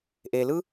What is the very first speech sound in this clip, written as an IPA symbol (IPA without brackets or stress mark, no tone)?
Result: ʔ